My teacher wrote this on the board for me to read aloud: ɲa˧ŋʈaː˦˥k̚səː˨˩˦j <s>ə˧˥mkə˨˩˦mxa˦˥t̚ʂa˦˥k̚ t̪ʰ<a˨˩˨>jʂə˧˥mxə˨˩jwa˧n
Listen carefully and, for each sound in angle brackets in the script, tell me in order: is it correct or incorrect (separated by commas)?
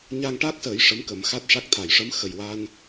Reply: incorrect, correct